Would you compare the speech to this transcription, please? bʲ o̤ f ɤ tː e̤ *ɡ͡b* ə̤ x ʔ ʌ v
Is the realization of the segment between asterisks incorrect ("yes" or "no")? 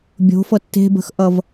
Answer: yes